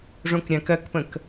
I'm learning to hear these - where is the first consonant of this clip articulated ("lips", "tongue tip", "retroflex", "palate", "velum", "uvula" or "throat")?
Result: retroflex